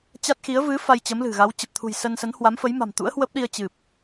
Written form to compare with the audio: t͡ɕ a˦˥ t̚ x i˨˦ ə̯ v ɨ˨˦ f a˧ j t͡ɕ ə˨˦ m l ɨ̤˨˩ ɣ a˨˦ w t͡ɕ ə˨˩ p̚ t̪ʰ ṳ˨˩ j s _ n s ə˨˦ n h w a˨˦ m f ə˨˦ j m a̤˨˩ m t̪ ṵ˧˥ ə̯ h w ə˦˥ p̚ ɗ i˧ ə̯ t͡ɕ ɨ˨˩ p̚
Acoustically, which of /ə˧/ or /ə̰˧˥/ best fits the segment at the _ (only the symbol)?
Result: ə˧